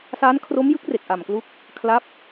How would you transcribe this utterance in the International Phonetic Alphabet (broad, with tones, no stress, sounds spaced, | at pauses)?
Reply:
s a˦˥ n kʰ r o˦˥ m j ɯ˦˥ k̚ r e˨˩ k̚ ʔ a˨˩ m k l u˦˥ k̚ | kʰ l a˦˥ p̚